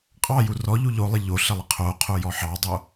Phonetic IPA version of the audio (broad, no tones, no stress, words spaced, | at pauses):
qʼɑju rɔʎu ʎolˠɪ ʎoɬɪlˠɪ qʰoqʰojɔ ħɑdˤo